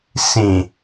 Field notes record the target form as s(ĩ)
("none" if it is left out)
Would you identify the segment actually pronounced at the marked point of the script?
ĩ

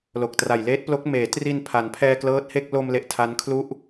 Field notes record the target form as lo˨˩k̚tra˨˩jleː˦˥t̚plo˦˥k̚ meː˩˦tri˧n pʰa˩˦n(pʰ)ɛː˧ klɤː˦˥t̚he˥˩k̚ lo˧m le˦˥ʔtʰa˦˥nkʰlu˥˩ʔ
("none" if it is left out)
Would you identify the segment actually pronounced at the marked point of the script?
pʰ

